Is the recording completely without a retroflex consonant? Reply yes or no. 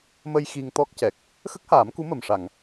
no